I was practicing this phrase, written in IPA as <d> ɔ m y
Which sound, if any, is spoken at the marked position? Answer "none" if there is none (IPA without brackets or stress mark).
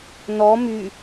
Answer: n